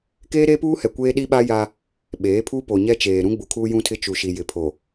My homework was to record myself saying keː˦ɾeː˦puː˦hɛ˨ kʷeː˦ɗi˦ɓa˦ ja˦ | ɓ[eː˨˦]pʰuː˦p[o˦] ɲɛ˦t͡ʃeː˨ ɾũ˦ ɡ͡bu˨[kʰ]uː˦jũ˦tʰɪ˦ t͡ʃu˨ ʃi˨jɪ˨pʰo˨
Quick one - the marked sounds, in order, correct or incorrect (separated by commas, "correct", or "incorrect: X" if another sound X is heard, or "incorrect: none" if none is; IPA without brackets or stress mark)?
correct, incorrect: o˨, correct